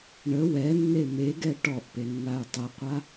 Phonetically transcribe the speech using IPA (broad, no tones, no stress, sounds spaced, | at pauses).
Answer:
ɳ ə w ɛ nː e m e ɡ ɛ ʈ ɔ ʔ p e nː a y̯ tˤ ə qʷ a